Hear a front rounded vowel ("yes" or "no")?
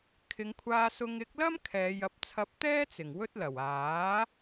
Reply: no